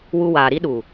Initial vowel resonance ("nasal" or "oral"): oral